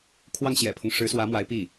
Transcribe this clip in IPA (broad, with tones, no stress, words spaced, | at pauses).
kʰwɑ˥˩ŋɕjɛ̰˨˩pʰʊ˦ŋ ʂɻ̩˧˥swä˧˥mwa˧˥ɪ̯ pi˥˩